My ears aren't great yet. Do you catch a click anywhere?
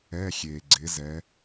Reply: yes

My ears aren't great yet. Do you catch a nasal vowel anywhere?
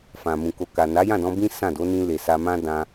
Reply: yes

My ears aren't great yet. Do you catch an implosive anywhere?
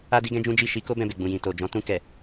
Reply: no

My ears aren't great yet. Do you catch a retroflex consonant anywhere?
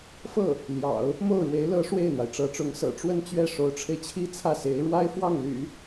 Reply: yes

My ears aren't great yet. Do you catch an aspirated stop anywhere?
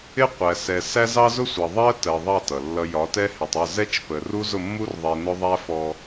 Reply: no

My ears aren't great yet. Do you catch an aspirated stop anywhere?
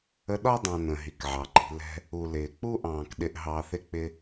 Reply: no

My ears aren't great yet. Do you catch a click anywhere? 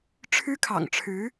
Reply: no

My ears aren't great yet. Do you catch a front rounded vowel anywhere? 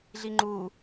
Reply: no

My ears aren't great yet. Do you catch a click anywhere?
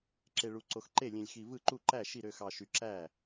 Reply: yes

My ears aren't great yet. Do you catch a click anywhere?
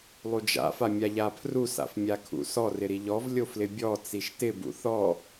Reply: no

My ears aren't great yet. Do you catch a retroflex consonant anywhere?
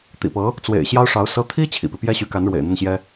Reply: yes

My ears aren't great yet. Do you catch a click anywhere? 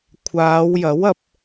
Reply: no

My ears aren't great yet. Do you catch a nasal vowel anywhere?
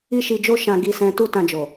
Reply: yes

